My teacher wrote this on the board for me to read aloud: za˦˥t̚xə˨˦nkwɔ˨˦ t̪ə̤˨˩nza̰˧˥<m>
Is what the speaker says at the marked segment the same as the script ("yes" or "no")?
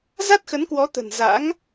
no